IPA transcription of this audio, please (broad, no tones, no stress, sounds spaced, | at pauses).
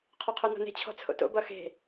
qʰ ɔ qʰ o n ɔ̤ n e̤ t͡ɕʰ ɔ̤ t͡sʰ o̰ t o̰ b ʌ x e̤